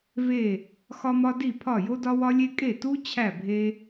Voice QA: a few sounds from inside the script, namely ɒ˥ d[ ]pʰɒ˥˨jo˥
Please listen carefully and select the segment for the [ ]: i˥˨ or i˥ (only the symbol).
i˥˨